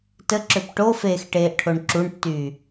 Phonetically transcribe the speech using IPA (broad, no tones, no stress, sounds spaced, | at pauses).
t ə ǁ ø p ʈ o f eː x ʈ eː ʔ ʈʰ o ɳ ǁ u ɳ tː yː